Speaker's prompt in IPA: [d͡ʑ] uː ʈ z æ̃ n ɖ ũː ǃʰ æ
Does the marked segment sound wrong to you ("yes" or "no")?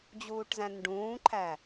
no